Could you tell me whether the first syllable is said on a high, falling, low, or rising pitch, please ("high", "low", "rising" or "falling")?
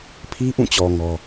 high